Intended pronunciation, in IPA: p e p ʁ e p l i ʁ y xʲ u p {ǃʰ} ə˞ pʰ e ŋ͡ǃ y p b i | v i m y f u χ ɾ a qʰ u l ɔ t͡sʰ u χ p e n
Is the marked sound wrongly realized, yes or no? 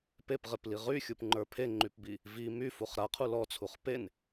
yes